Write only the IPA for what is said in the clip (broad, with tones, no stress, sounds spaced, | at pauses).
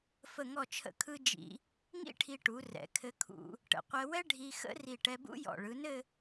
f ə˥˧ ŋ ɔ˥˧ t͡ʃʰ ə̰˥˧ kʰ ɯ˥ d͡ʒ ḭ˧ | ŋ ḭ˥ ʈʰ i˧ ʈ u˩˧ r ɛ̰˩˧ kʰ ɘ˧ kʰ ṵ˧ | ʈ ə̰˩˧ qʷ ɛ˧ w ɛ˥ ɖʱ i˧ x ə̰˥ r i˧˩ ʈ ɛ˧ b ṵ˥ j ɔ̰˧˩ ɭ ɯ˩˧ n ɘ˥˧